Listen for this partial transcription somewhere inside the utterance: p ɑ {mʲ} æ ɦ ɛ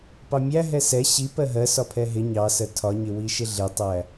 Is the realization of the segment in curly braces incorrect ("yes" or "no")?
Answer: no